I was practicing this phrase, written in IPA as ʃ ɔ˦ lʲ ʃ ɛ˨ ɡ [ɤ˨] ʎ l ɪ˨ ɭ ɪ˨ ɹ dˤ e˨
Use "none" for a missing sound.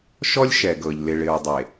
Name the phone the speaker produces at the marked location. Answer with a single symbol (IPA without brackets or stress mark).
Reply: ɤ˨